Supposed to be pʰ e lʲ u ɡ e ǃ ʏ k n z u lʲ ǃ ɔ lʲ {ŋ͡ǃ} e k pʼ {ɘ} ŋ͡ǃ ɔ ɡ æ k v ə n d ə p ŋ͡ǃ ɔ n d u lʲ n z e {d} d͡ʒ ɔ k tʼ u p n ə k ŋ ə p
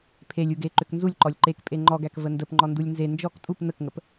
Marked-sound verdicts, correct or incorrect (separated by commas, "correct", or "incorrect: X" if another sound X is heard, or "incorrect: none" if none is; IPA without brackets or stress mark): incorrect: ǃ, incorrect: e, incorrect: n